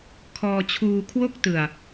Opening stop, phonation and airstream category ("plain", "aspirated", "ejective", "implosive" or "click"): aspirated